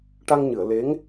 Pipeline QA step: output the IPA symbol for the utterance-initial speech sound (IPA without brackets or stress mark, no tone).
ʈ